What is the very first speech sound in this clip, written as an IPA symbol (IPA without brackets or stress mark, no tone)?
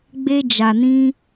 ɡ͡b